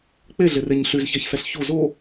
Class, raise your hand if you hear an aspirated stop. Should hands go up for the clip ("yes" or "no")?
no